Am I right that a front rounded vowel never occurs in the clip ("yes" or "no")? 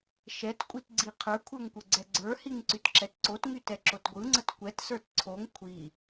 no